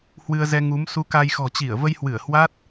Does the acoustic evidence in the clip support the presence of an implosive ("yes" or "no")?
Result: no